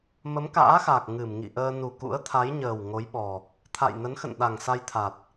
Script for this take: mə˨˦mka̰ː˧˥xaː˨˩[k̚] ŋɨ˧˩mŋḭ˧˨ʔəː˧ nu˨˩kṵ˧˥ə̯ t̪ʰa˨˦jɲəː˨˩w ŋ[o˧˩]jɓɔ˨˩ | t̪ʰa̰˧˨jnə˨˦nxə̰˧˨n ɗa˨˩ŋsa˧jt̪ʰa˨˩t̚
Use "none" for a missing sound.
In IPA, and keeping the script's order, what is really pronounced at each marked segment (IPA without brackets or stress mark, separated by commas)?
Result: k̚, o˨˦